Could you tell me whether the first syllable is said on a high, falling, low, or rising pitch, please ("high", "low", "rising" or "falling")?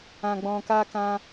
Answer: low